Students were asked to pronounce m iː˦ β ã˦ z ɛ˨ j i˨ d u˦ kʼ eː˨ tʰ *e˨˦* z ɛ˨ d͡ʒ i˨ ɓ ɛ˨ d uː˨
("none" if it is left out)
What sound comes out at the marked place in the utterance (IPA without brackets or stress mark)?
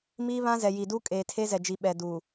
e˦